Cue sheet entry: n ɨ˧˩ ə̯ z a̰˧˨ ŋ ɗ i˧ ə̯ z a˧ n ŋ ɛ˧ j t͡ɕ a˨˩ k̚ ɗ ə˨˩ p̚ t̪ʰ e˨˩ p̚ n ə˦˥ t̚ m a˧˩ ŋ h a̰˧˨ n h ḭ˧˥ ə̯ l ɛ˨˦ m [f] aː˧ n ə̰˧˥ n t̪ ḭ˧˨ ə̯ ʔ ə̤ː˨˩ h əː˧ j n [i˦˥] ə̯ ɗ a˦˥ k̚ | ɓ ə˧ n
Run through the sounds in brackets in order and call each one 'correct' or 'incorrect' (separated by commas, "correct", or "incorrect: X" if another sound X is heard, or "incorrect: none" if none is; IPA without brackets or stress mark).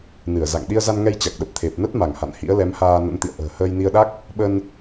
incorrect: h, incorrect: i˧